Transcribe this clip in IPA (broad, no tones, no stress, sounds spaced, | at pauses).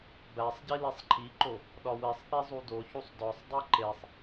b æ sˤ ɟ i l e sˤ ǃʰ i ǃ o | ɗ ɒ w e sˤ θ e zˤ u d o ç u sˤ d ɒ sˤ dˤ i ǃ e sˤ